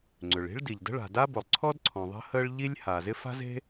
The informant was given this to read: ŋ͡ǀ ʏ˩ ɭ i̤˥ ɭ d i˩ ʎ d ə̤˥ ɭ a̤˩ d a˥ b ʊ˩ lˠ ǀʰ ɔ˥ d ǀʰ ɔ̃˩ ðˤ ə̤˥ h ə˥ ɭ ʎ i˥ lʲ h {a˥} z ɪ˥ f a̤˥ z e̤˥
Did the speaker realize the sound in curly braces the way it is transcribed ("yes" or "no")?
no